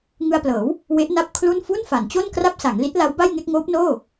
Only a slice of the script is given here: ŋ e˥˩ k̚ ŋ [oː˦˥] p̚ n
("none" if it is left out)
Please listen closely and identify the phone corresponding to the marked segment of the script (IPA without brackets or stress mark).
oː˦˥